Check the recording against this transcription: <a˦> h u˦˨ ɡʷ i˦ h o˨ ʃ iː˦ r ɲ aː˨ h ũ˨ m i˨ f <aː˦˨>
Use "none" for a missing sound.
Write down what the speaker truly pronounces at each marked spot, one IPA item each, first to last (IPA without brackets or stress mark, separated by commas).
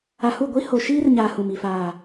a˨, aː˨